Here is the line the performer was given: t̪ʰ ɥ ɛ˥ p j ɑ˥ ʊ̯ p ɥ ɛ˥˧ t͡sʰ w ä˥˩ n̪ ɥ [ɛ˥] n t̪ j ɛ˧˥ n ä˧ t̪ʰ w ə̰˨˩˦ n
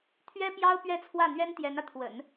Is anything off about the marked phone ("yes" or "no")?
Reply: no